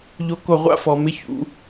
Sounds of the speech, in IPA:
ʎ o˦ k o˦ ʁʷ a̰˦ f ɔ˨˦ m ɪ˦ ç ṵ˨˦

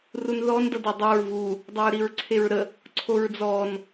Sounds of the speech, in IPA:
r u n ð ɔ n d ʌ d e dˤ o ɹ v u | dˤ ʌ ɹ ɾ i ɹ ǀʰ e ɹ ɾ ə | ǀʰ o ɹ d͡z ɔ n

